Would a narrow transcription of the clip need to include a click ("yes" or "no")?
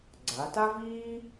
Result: yes